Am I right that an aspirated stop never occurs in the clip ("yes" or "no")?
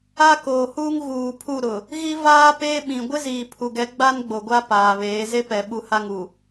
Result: no